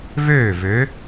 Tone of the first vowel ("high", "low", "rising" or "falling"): falling